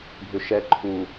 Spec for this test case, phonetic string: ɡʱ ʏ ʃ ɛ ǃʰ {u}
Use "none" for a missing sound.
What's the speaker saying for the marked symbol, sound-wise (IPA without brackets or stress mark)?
u